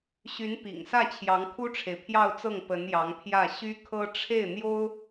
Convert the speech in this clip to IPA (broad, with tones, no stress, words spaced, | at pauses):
ɕy˧˥npḭ˨˩ŋsä˥˩t͡ɕʰjɑ˧˥ŋ kʰu˥ʈ͡ʂʰe˨ɪ̯pʰjɑ˥˧ʊ̯t͡sɤ˥˩ŋ pə˧˥njɑ˧˥ŋpʰjä˥˩ ɕy˥kʰɤ˥ ʈ͡ʂʰe˥˩ɪ̯n̪jo˥ʊ̯